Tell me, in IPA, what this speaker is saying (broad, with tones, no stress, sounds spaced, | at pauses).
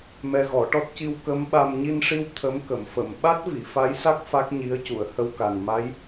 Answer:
m ɛ˧ ɣ ɔ˨˩˦ ʈ ɔ˦˥ t̚ c i˧ w k ə˧˥ m ɓ a˧ m ɲ i˧ n ʂ i˧ w t̪ʰ ə˧˥ m k ə˨˩˨ m f ə˨˩˨ m ɓ a˦˥ t̚ v i˨˩˨ f a˧˥ j s a˦˥ k̚ f a˦˥ k̚ ɲ i˧˥ ə̯ c u˨˩˨ ə̯ h ə˧ w k a˨˩ n m a˧˥ j